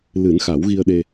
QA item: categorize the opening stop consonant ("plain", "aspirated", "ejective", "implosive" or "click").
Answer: implosive